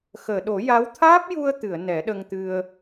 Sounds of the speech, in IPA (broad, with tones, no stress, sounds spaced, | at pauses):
x əː˨˩˨ ɗ o˨˩˦ j a˧˥ w t̪ʰ aː˦˥ p̚ j u˧ ə̯ t̪ ɨ˨˩˨ ə̯ n ɛ˨˩˦ ɗ ə˧ ŋ t̪ ɨ˧ ə̯